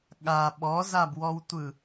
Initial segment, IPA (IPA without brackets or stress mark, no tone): ɠ